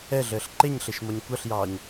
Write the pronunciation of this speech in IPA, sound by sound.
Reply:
ɛ ɮ əː ɬ ǃ e ɲ ɬ e ʃ m ɔ ɲ kʷ ʌ ɬ j ɑː ɲ

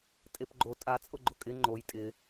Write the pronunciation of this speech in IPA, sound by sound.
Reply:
tʼ e p ɡ͡ǃ o tʼ a t͡sʼ ʊ ɡ͡ǃ ʊ kʼ ɪ ŋ͡ǃ o j tʼ ɪ

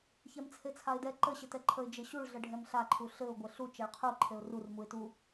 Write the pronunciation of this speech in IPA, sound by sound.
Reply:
ç ɛ m t͡sʰ e t͡sʰ a ɪ̯ d ɛ ǃ ə ɕ ɘ t ɛ ǃʰ ə ɪ̯ d͡ʒ ɘ ɕ u ɭ ɮ ə ɖʱ ɛ m ɬ a ǃʰ u ɬ ɘ ʊ̯ ɡʷ ɘ ɬ u t͡ʃ ɛ ɭ qʰ u ǃʰ e ʊ̯ r u r m u ɪ̯ t u

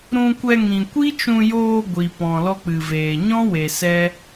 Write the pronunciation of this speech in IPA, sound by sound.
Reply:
ɾ ũ˧ kʷ ɛ˧ ŋ ĩ˨ kʷ i˦ t͡ʃ ũ˧ j oː˧ ɡʷ i˨ p ɔ̃˨ l ɔ˦ k͡p ɨ˨ v eː˨ ɲ ɔ̃˦ w e˨ s ɛ˦

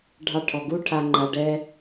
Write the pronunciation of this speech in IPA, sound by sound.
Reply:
ɖʱ ɑ˧ ʈʰ ɔ˨ ɡ u˦ ʈʰ a˧ ŋ͡ǃ a˧ ɖ ɛ˦

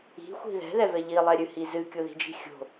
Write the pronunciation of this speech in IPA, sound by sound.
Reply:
i̤ xʷ i̤ ð ɛ̤ ð ɛ v ɛ ʎ i lˠ ɛ ɾʲ ɨ h i z ɨ kʲ o ð i̤ d͡ʒ i̤ xʲ o̤

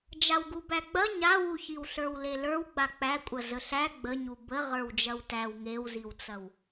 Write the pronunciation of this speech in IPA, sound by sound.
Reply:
d͡ʒ a w ɡ u b æ ɡ͡b ɐ ɲ a w u ç i w ɬ ə˞ w l e l ə˞ w ɡ͡b a k͡p æ kʷʼ ɐ z ə ɬ æ ɡ͡b ə ɲ u b ə ʁ ə˞ w d͡ʒ ɐ w t æ w ŋ e w z i w t͡s ɐ w

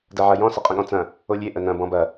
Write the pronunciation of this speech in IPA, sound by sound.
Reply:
d ɐ ʕ ɐ j ɔ̃ s ə qʼ ə̃ ɠ ɔ̃ t͡s ɐ̃ | o lʲ e ʔ ə n ɐ̃ b ɔ̃ b ɐ

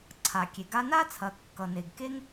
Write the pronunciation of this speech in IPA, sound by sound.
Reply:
ǀʰ a˩ kʲ e˩ ɡ a˧ n a˥ t͡sʰ ɐ˩ kː ʌ˩ n e˩ ɡ k e˥ ŋ

